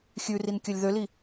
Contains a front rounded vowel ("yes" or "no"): yes